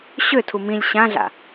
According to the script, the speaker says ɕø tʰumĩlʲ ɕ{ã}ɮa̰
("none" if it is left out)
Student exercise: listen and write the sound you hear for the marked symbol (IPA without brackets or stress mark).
ã